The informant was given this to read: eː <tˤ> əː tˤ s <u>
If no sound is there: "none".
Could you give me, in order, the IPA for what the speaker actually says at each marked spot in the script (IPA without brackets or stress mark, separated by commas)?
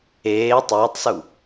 tˤ, u